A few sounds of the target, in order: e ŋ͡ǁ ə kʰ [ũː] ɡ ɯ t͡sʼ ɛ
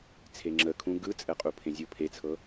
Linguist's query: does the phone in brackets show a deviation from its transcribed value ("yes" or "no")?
yes